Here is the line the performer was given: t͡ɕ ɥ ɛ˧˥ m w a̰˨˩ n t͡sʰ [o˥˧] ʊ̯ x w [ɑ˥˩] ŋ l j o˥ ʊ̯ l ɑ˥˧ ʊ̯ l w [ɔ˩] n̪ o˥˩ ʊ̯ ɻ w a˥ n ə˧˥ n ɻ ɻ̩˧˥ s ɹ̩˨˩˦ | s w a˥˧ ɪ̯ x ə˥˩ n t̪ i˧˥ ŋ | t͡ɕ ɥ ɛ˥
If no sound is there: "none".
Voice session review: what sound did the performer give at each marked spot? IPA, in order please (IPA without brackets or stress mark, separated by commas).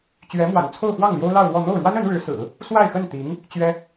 o˥˧, ɑ˥˩, ɔ˥˧